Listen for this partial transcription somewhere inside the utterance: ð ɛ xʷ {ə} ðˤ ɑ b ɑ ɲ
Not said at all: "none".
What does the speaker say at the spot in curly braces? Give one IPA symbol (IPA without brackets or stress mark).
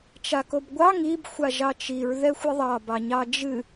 ɨ